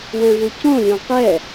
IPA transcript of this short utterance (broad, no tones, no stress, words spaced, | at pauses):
wɛ̃vucõlʲõ qɛ